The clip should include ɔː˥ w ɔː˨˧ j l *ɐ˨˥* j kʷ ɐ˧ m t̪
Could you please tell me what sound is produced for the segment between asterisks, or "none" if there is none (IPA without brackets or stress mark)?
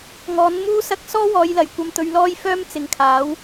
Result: ɐ˨˩